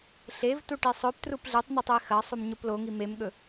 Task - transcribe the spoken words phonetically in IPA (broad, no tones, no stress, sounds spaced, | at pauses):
ɬ e v t u ʈ i sˤ ɵ p t r u p ɮ e tˤ n̪ e tˤ e x ɐ sˤ u m ɲ o p l o ŋ i m e m ɠ ɵ